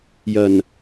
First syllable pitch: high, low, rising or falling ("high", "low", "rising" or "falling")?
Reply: low